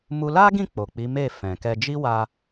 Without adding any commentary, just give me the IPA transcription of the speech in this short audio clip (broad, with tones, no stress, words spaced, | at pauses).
mu˦ la˦ɡĩ˦˨ k͡po˨k͡pi˨˦me˦˨ fɛ̃˨kɛ˧ d͡ʒi˦wa˧